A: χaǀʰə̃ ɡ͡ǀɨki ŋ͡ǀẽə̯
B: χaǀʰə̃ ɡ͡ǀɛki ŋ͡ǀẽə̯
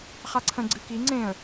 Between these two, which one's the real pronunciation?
A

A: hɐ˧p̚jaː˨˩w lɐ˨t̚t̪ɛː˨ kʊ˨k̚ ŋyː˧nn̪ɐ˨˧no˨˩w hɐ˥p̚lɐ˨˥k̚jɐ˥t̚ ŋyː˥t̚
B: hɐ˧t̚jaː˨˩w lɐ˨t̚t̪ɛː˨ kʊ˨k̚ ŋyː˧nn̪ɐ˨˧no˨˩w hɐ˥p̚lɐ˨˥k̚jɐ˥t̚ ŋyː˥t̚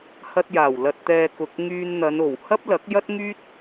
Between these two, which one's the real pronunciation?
B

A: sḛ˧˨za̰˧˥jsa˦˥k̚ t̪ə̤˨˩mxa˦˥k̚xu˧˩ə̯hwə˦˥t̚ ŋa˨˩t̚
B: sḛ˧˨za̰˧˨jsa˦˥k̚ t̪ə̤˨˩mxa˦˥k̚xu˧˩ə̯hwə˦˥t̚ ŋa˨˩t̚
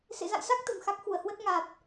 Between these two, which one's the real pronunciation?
B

